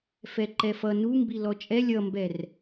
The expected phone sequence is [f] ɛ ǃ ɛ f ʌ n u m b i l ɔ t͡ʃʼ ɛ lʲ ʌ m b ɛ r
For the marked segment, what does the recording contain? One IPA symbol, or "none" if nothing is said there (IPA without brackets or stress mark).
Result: f